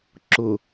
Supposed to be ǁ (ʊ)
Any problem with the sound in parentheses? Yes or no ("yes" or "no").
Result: no